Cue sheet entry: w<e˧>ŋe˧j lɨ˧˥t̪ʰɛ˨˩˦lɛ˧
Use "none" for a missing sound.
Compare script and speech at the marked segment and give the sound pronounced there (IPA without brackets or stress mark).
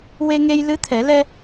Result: e˧